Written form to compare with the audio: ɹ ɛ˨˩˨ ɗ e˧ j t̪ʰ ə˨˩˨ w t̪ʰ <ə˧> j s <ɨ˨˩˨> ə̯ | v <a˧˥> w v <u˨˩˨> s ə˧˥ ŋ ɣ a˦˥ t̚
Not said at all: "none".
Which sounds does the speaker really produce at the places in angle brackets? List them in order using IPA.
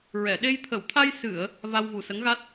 a˧, ɨ˨˩˨, a˧, u˨˩

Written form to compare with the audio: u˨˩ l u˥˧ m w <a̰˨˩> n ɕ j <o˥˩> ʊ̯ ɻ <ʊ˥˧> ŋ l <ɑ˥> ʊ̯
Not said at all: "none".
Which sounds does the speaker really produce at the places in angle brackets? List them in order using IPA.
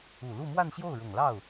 a˥˧, o˥˩, ʊ˨˩, ɑ˥˩

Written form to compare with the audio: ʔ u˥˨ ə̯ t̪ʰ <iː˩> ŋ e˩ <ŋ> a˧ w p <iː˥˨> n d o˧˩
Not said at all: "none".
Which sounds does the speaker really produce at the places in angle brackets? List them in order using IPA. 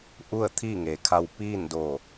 iː˥˨, kʰ, iː˥˨

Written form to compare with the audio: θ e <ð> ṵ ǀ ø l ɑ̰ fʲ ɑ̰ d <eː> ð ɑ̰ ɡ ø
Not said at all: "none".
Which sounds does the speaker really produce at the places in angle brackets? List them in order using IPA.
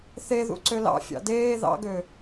ð, eː

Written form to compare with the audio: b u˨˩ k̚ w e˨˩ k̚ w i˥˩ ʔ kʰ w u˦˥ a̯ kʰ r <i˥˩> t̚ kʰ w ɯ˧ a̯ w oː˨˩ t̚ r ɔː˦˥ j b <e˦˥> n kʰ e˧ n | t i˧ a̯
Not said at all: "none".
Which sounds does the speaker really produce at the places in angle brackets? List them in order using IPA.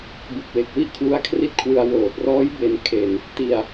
i˦˥, e˧

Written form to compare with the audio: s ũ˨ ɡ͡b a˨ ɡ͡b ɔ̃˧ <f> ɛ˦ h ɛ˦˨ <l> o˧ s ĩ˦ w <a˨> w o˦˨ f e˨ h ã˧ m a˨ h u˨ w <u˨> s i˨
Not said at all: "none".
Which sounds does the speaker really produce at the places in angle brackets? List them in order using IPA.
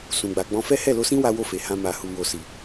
f, l, a˦, o˨

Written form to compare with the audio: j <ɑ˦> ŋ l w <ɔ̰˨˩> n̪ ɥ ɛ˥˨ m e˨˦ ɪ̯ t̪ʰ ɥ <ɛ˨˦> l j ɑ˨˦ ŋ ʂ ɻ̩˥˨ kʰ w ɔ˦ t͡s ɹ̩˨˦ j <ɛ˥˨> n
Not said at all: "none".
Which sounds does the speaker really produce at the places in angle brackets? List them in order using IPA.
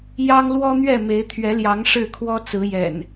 ɑ˦, ɔ˦, ɛ˨˦, ɛ̰˨˩

